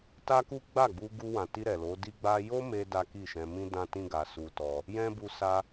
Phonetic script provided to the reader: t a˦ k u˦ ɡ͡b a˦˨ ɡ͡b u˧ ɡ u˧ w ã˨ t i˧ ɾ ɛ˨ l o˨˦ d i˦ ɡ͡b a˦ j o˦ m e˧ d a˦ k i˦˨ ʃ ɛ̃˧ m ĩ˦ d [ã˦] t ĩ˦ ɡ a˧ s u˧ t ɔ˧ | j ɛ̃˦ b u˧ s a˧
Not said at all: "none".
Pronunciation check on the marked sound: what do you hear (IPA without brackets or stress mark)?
ã˦